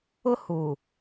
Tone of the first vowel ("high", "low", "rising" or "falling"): high